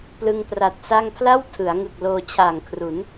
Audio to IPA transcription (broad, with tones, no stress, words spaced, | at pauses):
plɯ˧ŋpra˨˩t̚sa˥˩ŋ pʰla˥˩wtʰɯ˩˦a̯ŋɯ˨˩k̚ loː˧ t͡ɕʰaː˨˩ŋkʰru˩˦n